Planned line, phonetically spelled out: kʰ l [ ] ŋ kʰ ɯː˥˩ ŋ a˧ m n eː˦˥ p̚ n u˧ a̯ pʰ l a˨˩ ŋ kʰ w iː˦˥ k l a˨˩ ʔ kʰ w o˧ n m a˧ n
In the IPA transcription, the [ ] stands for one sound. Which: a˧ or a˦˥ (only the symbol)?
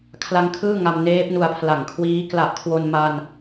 a˦˥